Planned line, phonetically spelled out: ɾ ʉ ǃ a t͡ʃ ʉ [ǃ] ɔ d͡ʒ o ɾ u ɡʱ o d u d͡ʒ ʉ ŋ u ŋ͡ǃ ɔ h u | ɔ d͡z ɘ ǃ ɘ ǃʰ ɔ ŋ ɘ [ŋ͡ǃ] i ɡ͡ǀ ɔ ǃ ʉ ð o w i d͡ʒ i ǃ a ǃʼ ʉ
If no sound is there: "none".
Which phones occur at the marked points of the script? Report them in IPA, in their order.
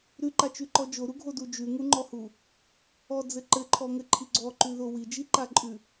ǃ, ǃʰ

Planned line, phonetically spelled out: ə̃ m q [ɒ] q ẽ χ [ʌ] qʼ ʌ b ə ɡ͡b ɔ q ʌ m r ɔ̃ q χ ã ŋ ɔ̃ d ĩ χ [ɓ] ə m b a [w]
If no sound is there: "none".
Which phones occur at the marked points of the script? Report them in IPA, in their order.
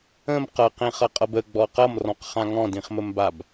ʌ, ʌ, m, b

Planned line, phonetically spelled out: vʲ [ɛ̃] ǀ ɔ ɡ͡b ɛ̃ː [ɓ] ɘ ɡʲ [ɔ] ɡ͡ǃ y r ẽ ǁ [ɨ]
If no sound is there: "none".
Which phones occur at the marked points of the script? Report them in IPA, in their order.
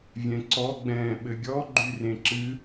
ɛ̃, ɓ, ɔ, ɨ

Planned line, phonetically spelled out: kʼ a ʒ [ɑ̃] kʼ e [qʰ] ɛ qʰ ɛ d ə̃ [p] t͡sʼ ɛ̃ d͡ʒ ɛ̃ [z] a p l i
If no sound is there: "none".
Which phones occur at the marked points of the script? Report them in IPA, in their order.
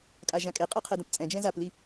ã, qʼ, p, z

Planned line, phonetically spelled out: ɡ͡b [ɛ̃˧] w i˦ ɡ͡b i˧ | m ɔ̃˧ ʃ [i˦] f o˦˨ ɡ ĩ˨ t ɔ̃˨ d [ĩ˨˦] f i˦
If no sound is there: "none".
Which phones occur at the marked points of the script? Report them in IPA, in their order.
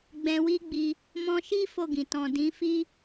ɛ̃˧, i˦, ĩ˨˦

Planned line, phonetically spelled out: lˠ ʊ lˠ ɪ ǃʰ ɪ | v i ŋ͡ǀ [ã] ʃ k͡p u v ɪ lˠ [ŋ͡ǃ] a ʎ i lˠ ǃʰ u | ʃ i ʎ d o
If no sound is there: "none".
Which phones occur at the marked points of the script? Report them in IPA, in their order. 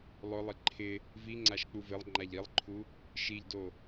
a, ŋ͡ǃ

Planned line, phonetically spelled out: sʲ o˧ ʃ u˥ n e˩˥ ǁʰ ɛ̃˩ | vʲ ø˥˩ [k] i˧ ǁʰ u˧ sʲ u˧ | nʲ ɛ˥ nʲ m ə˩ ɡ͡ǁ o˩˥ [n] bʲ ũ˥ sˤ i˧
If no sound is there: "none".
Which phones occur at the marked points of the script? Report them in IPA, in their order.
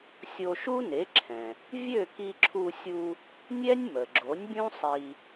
k, nʲ

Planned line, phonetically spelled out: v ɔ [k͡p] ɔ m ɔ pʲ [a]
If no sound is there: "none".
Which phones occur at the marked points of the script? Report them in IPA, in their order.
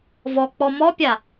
k͡p, a

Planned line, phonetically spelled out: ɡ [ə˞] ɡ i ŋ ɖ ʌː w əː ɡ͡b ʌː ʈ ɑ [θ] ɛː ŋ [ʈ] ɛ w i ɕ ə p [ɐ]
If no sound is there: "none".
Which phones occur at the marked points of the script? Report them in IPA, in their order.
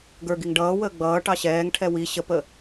ə˞, ɕ, ʈʰ, ə

